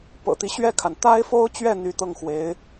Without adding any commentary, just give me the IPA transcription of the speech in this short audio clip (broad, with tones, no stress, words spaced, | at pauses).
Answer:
pɤ̰˨˩t̪i˧˥ɕɥɛ˥˩kʰa˩n t̪a˥ɪ̯fo˥ʊ̯t͡ɕɥɛ˥˩ n̪y˧˥t̪ɤ˥˩ŋxwe˧˥ɪ̯